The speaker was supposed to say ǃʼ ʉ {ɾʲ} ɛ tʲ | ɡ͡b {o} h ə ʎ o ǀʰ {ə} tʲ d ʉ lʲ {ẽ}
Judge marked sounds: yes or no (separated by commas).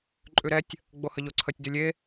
no, yes, yes, no